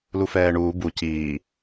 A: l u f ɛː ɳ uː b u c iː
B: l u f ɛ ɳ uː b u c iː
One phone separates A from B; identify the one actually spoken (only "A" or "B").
A